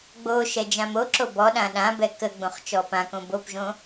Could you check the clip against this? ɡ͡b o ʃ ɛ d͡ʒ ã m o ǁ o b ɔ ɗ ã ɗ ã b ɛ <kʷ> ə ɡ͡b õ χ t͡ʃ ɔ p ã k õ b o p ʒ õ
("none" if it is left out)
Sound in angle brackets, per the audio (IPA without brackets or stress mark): k